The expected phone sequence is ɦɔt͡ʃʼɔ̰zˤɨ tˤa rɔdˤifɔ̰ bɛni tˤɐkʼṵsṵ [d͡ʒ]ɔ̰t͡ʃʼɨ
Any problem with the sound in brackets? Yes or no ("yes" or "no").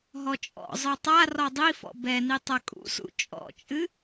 yes